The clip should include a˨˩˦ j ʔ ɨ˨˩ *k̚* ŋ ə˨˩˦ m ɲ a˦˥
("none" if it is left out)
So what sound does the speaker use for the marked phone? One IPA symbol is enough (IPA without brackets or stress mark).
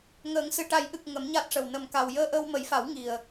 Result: k̚